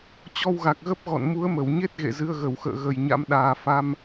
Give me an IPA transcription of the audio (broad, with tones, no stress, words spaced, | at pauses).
t͡ɕɔ˧wɣa˨˩k̚ɣə˦˥p̚ ɣɔ̰˧˨n mu˨˦ə̯mə˧˩wɲe˦˥t̚ ɣḛ˧˨zɨ˧ə̯ɣə˧˩wxə̰ː˧˨ ɣə˨˩jɲa̰˧˥m ɗaː˨˩fa˧m